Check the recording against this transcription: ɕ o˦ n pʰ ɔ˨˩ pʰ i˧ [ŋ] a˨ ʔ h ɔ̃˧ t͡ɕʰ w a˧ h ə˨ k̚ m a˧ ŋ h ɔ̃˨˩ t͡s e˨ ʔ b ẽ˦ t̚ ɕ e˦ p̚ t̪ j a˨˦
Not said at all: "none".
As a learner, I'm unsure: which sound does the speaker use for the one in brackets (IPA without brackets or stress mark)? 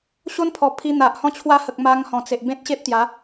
n̪